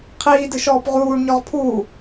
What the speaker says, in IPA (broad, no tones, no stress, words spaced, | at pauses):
qʰiːdɨ ʃɔːpʁuːɳɲɔʁ pʰuː